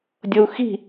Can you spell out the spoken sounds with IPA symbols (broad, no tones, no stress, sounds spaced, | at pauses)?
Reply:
dʲ ɤ u̯ x i̤